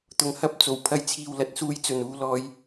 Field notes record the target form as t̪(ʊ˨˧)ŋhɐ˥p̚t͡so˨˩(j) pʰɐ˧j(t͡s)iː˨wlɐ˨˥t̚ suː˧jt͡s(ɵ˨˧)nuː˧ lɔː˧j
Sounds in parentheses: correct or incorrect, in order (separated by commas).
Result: incorrect, incorrect, incorrect, incorrect